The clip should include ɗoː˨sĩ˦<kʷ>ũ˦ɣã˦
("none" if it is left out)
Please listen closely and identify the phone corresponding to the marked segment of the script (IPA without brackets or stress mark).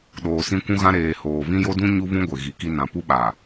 kʷ